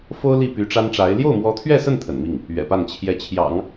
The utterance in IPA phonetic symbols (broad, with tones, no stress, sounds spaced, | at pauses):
f o˥ ʊ̯ l i˥˩ p y˧˥ ʈ͡ʂ a˥ n ʈ͡ʂ a˧˥ ɪ̯ l j o˥˩ ʊ̯ m w ɔ˧˥ t̪ʰ ɥ ɛ˥˧ s ə˥˩ n t̪ʰ ə̰˨˩ n m i˥˩ ŋ | ɥ ɛ̰˨˩ p a˥˩ n t͡ɕʰ j ɛ˧˥ t͡ɕʰ j ɑ̰˨˩˦ ŋ